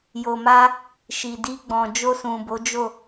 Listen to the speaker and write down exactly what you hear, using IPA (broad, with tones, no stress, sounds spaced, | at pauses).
j o˨ m a˧ | ʃ i˨ d i˧ ɡ͡b ɔ̃˨ d͡ʒ o˧ s ũ˨ b o˨˦ d͡ʒ o˦˨